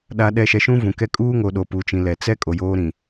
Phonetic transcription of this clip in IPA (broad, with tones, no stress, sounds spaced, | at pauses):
ɗ a˨ ɗ ɛ˨ ʃ ɛ˨ ʃ ũ˦ v ũ˨ k ɛ˦ kʼ uː˦ ŋ o˨ ɗ o˨ p u˨ t͡ʃ ĩ˨ l ɛ˨ t͡s ɛ˦ kʼ o˨ j oː˦ ɾ ĩ˨